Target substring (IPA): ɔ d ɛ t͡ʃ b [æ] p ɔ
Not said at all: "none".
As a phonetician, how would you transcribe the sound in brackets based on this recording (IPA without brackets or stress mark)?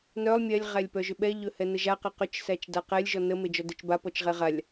a